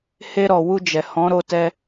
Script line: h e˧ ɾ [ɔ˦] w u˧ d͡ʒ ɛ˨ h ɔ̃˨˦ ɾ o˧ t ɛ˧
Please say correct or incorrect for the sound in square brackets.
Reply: incorrect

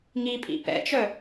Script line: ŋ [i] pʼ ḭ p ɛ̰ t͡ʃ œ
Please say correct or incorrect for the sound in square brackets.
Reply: correct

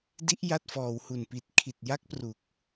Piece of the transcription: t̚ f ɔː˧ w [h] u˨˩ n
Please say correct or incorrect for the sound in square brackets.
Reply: correct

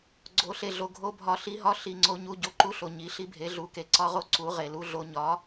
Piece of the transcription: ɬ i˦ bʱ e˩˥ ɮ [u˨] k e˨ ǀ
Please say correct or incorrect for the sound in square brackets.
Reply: incorrect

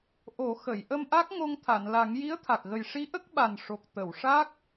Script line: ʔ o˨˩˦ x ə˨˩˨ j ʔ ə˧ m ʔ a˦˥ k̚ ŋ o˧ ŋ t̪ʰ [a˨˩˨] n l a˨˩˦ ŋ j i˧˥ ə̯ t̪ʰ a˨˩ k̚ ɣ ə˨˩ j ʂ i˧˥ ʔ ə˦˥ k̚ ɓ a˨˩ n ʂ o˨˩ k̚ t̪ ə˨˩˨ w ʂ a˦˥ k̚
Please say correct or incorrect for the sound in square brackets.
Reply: correct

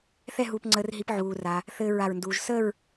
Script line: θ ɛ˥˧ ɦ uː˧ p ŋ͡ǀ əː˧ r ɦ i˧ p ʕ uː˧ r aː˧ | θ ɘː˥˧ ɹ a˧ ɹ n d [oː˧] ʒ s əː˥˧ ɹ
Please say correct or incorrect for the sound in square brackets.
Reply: incorrect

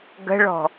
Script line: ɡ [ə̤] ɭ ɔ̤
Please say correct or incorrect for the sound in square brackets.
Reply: correct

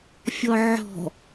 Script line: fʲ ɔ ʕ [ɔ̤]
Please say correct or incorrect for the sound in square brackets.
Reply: correct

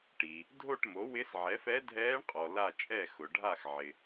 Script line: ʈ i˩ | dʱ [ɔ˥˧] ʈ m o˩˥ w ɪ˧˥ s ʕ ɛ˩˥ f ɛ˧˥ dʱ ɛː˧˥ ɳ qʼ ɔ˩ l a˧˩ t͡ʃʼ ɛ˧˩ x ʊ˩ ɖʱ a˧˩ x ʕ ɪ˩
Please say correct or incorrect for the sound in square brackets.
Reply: incorrect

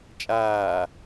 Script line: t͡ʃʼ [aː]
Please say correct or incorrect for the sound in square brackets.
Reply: correct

